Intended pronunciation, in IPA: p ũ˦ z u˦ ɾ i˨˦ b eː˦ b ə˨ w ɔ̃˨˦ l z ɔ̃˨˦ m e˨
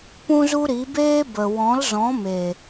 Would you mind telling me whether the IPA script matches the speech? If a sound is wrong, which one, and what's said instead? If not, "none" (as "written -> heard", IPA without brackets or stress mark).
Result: none